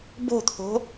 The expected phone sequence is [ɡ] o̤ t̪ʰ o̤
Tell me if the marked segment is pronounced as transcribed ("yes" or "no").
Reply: no